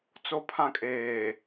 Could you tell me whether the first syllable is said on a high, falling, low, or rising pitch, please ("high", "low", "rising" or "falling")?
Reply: high